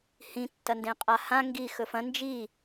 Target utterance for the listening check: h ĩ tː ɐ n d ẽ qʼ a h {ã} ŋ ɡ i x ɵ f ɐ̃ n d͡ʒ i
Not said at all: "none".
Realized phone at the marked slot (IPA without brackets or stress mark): ã